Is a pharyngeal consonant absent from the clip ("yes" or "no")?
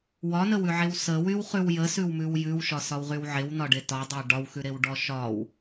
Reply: no